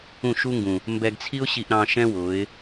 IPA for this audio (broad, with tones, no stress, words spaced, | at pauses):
ũ˦˨ʃu˦ŋɡũ˨ | mbɛ˧ɡt͡sʰi˦ʊ̯ɕi˧ʔɾɑ̃˧ ʃɛ̃˦ wʊ˨˦ɪ̯